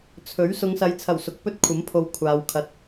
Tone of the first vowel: rising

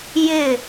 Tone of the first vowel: falling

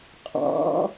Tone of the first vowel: rising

